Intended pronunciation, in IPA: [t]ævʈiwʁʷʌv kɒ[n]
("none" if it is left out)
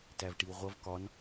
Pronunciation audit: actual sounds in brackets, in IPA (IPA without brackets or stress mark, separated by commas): t, n